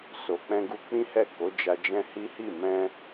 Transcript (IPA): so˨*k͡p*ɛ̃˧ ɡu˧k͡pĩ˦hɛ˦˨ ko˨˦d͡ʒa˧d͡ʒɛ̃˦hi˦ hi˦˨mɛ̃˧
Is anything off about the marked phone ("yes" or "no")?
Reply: no